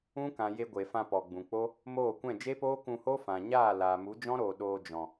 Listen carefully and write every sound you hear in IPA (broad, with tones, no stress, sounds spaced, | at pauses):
ũ˦ k ã˨ j e˧ ɡʷ e˨ f ã˧ p ɔ˨ ɡ͡b ũ˨ k͡p o˦ | m oː˦˨ kʷ ɛ̃˦˨ d͡ʒ e˦ p oː˦ k ũ˧ h o˦ f ã˨ ɲ aː˦˨ l aː˨ m u˨˦ d͡ʒ ɔ̃˦ ɾ oː˨ ɗ oː˧ d͡ʒ ɔ̃˨